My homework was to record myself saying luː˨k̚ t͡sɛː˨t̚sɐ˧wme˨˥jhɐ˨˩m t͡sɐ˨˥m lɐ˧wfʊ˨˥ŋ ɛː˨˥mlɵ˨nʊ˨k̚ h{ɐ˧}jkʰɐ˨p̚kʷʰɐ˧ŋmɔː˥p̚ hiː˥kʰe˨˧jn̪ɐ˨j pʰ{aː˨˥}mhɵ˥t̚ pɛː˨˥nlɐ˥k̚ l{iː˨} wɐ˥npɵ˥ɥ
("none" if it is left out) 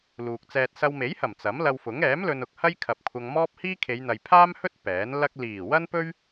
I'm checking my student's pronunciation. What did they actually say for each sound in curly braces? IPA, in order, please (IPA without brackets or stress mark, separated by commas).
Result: ɐ˥, aː˥, iː˨˩